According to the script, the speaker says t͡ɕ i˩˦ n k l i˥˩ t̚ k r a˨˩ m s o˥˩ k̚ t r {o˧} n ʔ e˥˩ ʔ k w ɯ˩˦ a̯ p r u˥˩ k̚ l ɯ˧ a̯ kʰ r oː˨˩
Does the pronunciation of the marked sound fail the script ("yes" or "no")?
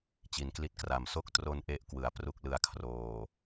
no